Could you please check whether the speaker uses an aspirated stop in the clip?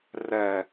no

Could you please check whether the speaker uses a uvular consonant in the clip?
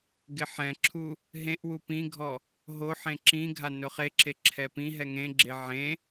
yes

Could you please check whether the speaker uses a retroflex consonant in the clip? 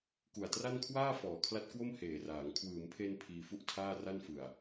no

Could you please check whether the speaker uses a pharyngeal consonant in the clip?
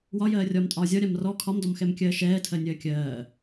no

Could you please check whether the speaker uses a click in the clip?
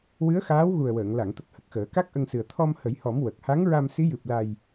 no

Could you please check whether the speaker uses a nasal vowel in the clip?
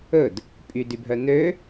no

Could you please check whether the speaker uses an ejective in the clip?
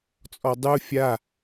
yes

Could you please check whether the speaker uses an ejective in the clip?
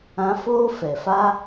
no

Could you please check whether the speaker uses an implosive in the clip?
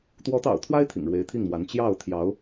no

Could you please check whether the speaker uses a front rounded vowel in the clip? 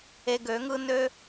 yes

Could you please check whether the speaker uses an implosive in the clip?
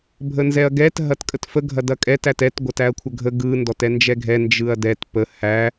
no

